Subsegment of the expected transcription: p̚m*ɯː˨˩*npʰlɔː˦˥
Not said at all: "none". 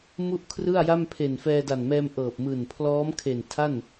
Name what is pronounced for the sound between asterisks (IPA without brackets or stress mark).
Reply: ɯː˨˩